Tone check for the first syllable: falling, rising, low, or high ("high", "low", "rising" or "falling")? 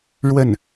falling